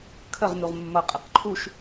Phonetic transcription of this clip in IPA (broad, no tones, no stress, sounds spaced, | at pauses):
kʰ ə ʁ n u ʁ mː ʌ qʼ i q ǃʰ u ʃ